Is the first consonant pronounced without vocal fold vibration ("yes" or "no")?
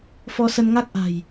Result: yes